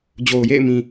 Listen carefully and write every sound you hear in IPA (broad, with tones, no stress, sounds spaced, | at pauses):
d͡ʑ o˨ ʊ̯ j ḛ˦˨ ɪ̯ m ĩ˨